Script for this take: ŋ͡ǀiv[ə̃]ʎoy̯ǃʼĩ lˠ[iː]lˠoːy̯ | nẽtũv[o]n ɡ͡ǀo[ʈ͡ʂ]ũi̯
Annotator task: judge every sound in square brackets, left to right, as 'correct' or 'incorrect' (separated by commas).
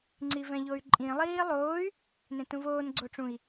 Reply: incorrect, correct, incorrect, correct